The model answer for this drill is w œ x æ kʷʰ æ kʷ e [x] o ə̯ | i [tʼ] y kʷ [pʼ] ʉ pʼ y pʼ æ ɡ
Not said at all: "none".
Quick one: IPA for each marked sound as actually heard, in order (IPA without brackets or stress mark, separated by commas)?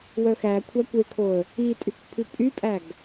kʰ, tʼ, pʰ